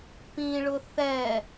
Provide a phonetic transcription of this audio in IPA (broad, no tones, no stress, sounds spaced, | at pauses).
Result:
p ĩ ɭ ʊ θ ɛ